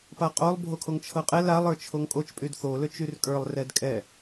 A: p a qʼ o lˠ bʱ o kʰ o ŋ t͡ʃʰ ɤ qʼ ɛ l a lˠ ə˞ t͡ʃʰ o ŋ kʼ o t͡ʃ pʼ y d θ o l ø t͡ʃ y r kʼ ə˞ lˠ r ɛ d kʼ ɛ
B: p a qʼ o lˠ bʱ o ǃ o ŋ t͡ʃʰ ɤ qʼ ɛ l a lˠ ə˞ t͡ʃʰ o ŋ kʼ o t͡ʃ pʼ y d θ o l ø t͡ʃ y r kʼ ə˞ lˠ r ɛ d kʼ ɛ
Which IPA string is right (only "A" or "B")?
A